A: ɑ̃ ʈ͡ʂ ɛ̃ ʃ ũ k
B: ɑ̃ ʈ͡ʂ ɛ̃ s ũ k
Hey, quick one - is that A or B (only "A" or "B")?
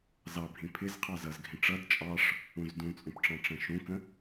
A